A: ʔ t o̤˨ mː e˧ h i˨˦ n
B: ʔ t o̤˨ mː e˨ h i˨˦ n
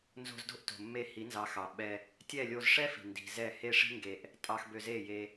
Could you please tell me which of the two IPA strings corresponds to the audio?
A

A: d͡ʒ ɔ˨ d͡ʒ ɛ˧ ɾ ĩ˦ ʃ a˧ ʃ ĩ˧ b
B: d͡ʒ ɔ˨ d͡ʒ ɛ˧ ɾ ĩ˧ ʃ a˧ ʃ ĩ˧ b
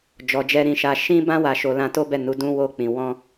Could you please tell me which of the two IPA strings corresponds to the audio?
B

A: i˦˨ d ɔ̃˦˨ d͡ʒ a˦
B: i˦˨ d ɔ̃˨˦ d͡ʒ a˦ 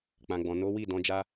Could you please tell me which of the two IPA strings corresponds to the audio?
B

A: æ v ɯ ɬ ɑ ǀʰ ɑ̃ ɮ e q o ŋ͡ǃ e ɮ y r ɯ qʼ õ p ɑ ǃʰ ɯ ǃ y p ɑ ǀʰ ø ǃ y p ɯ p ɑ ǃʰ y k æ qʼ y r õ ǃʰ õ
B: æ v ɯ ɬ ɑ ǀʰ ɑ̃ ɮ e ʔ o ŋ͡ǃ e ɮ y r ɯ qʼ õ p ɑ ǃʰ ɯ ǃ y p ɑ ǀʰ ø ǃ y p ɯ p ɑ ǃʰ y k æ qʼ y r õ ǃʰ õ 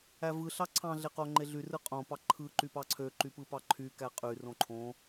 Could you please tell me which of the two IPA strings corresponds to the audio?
A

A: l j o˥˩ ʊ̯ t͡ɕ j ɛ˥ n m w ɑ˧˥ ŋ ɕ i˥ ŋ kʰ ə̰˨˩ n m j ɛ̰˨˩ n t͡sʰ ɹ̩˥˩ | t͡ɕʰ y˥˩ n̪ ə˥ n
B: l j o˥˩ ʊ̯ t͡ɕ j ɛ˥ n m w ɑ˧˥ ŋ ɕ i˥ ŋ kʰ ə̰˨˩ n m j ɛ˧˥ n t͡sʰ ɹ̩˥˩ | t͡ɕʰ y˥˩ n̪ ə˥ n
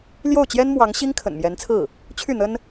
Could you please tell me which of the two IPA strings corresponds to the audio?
B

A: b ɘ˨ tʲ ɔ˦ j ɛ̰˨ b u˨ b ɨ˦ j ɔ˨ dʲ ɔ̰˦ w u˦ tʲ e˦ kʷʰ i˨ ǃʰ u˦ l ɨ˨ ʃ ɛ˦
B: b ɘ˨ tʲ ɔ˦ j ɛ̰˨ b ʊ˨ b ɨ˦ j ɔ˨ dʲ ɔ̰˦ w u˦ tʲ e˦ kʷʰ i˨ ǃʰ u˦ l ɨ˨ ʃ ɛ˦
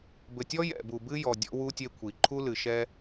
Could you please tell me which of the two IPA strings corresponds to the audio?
A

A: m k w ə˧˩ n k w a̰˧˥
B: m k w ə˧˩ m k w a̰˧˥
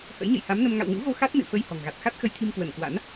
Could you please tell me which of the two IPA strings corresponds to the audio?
A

